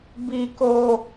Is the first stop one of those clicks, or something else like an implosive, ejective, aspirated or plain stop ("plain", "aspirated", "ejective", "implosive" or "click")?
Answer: plain